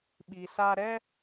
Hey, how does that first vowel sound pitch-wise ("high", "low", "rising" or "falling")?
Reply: low